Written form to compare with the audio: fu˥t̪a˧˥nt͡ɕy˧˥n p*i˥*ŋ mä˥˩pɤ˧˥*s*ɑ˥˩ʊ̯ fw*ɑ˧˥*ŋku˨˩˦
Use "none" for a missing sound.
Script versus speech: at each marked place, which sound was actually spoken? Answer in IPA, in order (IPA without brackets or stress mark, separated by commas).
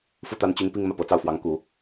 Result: i˥, t͡s, ɑ˧˥